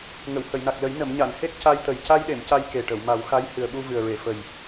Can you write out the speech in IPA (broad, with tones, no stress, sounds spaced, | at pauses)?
ŋ ə˨˩˨ w h ə˨˩˨ j n a˨˩ k̚ l ə˨˩˦ j n ə˨˩˨ m ɲ a˨˩˨ n h e˦˥ k̚ c a˧ j t̪ ə˨˩ j c a˧ j ɗ e˨˩˨ m c a˧ j k e˨˩ ʈ ə˨˩˨ w m a˨˩˦ w x a˧˥ j h ɨ˨˩ ə̯ ɓ u˧ v ɨ˨˩ ə̯ ɹ e˨˩˨ f ə˨˩ j